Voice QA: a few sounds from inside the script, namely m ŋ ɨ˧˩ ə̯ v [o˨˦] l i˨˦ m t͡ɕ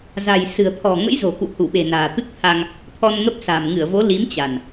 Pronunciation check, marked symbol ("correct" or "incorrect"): correct